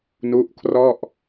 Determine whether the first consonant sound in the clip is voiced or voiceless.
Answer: voiced